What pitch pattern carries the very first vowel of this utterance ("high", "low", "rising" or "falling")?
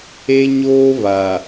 high